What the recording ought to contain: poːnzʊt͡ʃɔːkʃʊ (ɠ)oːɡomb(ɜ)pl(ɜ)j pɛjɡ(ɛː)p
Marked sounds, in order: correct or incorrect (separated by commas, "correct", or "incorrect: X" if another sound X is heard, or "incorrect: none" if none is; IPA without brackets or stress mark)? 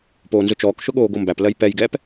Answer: correct, incorrect: æ, correct, correct